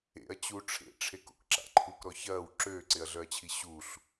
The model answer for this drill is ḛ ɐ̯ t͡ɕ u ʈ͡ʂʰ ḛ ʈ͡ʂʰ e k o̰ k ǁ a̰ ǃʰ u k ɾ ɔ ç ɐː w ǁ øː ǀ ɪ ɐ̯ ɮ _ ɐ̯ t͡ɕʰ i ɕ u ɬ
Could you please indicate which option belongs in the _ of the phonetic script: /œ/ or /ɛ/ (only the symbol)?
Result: œ